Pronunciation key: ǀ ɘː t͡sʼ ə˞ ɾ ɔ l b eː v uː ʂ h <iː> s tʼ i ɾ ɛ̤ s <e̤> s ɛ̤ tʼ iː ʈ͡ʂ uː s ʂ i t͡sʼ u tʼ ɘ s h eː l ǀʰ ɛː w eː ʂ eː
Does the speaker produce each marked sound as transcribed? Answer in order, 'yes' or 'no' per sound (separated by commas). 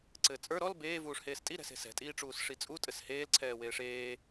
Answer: no, yes